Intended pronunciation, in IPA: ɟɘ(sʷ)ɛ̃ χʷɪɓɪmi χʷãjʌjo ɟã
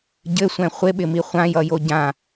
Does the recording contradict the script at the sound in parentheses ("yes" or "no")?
no